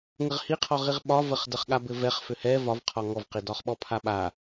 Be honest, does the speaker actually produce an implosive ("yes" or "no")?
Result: yes